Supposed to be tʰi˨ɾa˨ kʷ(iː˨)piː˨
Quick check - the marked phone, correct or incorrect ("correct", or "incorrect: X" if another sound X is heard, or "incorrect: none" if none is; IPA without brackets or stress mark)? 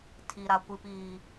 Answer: incorrect: i˨